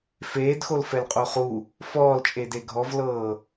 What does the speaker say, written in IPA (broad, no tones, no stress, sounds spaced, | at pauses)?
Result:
f eː d x o l f ɛ l qʼ o χ u | f ɔː l t͡ʃʼ e d e ɡʱ ɔ v l ɤː